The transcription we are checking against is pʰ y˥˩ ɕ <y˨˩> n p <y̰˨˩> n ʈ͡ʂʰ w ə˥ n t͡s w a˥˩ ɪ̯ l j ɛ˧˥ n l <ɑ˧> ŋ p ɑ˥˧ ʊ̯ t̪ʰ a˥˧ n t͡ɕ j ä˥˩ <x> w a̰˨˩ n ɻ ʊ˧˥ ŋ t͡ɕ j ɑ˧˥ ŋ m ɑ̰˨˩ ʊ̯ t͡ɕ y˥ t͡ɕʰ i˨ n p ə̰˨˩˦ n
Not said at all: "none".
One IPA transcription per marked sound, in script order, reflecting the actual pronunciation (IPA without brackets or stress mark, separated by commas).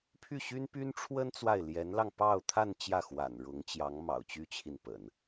y˥, y˥, ɑ˧, x